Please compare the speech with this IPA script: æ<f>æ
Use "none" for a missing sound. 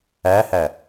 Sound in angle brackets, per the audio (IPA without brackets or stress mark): h